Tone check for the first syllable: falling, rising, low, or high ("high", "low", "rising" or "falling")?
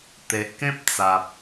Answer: low